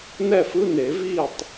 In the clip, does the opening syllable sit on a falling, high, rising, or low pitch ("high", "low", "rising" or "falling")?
falling